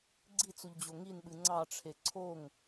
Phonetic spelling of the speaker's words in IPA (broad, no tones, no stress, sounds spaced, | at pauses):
ɡ͡ǀ i t͡s u ʎ d͡ʑ o ŋ i n ɓ ɨ ŋ͡ǀ ɑ ʈ͡ʂʰ e ǀʰ o ŋ